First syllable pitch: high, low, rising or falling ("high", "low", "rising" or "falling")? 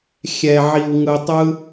low